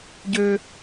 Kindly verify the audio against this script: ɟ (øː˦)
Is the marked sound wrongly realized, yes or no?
no